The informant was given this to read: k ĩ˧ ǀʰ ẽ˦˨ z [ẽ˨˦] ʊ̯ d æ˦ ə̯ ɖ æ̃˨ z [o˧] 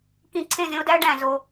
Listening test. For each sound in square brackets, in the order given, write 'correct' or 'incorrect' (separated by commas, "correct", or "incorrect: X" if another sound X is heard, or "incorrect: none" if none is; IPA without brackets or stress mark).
incorrect: ẽ˦, correct